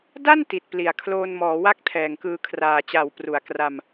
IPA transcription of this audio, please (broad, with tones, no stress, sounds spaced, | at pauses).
d a˥˩ n t i˨˩ t̚ p l i˨˩ a̯ kʰ l oː˧ n m ɔː˩˦ w a˥˩ k̚ tʰ ɛː˨˩ ŋ k ɯː˧ kʰ r aː˨˩ t͡ɕ a˨˩ w p r u˨˩ a̯ k r a˧ m